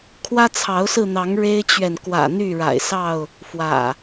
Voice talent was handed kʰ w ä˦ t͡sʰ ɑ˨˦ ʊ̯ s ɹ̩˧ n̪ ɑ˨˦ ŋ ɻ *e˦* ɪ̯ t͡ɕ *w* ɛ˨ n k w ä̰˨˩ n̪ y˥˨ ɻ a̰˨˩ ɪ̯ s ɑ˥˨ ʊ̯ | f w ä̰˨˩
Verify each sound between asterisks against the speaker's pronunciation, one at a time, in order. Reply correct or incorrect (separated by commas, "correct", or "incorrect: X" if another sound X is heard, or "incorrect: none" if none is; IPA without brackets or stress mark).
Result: correct, incorrect: ɥ